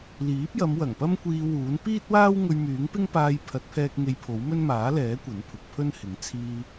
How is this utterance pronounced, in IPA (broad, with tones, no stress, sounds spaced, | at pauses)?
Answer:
l iː˨˥ p̚ j ɐ˨˧ m w ɐ˨˩ ŋ p ɐ˥ m kʷ iː˧ w uː˨˥ n p iː˥ t̚ w aː˥ w ŋ ɵ˧ ɥ m yː˨˥ ŋ p ɪ˥ ŋ p aː˧ j pʰ ɐ˨˥ t̚ pʰ ɛː˧ k̚ ŋ e˧ j pʰ o˨˥ w m ɵ˥ n m aː˨˥ l ɛː˨˥ kʷ ɐ˨˥ n pʰ ʊ˨ k̚ pʰ ɵ˥ n h ɪ˨˥ ŋ t͡sʰ iː˧